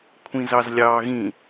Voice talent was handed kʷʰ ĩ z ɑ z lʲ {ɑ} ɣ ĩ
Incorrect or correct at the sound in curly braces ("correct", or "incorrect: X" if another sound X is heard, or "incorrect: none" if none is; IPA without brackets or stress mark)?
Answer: incorrect: ɑː